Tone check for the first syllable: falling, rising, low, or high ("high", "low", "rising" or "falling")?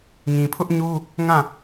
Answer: low